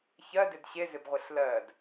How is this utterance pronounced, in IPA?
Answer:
çɜdɪd ɕezɪbʁʷɪɬ lɜd

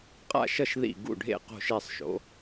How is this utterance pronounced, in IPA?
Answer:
qʼa̰˥˩ʃʌ˥˩ʃ ðḭ˥˩ ɡṵ˥˩ɖʱḛ˥˩ qo̤˥˩ʃe˥˩sˤʃo̰˩˥

